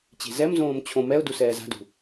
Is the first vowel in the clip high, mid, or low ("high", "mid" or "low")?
mid